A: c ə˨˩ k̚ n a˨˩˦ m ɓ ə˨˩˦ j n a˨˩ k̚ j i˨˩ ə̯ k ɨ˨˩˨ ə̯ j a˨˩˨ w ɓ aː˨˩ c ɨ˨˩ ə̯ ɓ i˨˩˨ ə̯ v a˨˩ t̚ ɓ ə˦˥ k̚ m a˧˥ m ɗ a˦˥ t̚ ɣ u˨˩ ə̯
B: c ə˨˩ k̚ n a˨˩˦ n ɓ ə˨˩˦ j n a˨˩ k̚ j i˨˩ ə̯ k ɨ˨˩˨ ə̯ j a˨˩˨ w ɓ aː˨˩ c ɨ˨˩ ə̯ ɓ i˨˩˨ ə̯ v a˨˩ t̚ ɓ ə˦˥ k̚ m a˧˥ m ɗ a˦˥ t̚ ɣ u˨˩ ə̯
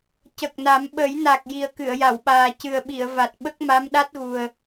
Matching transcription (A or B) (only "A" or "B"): A